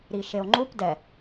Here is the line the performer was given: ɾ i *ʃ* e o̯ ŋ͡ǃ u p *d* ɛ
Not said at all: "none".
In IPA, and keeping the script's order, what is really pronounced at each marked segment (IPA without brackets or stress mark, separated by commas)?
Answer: ʃ, d